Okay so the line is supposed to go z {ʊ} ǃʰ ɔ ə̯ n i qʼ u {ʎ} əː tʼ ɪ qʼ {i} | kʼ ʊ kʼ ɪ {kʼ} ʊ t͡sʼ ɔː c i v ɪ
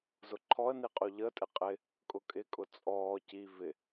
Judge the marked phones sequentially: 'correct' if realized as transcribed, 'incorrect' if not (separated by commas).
correct, correct, incorrect, correct